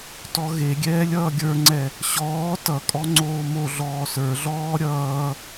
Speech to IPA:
t ɔ ɣ e ɡʲ ɛː lʲ ʌː ɡʲ ə˞ ŋ͡ǀ ɛ | ɕ ɔː t ʌ kʼ ɔ ŋ͡ǀ oː m o ɮ ɔː s ə˞ ɮ ɔː ɾʲ ʌː

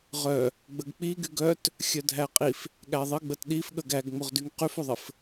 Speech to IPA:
ʁ œ | ɡ͡b ə ɡ k͡p i ɡ y ɡ œ t | xʲ œ dʱ æ qʼ i f | ɠ æ ðˤ ɘ ɡ͡b ə t ɗ i f ɠ ə ɡ æ ɡ ŋ͡m o ʁ d y ŋ q y f o ðˤ ɘ f

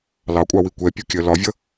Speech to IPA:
l ɑ kʷʼ ɑ w i kʷ ɛ pʲ u kʲ ɜ l ɒ vʲ ʌ

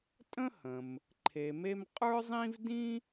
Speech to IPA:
tʼ ə̃˥ h ə̃˩ m | ǃʰ e˩ m e˧ m qʼ ə˞˥ zˤ ĩ˥ v d ĩ˥

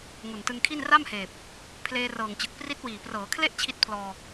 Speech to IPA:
ŋ u˨˩ n t ɯ˧ ŋ kʰ i˥˩ n r a˥˩ m h eː˨˩ p̚ | pʰ l eː˧ r ɤː˨˩ ŋ t͡ɕ ɯ˨˩ k̚ p r i˦˥ t̚ w iː˨˩ p r ɤː˩˦ kʰ l e˥˩ ʔ t͡ɕʰ i˦˥ t̚ pʰ l ɔː˧

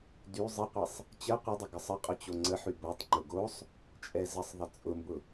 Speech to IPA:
d y zˤ ɪ qʷ ɛ sˤ | t͡ɕ ə qʷ ɪ dˤ ɪ ɡ ə sˤ ə qʼ ʊ t͡ɕ o ŋ͡ǀ ə ħ y b o tˤ ŋ͡ǃ ʊ ɡ o sˤ | t͡ʃʼ ɛ z ə sˤ ðˤ ɪ t͡sʼ ʊ m b ʊ

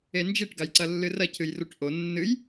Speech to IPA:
e n d͡ʒ i ʈ ɡ a j ǀ ɐ lː ɨ r ɐ cʰ ɨ j r u ʈ ʔ o nː ɨ j

